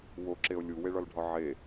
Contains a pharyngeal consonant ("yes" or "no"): yes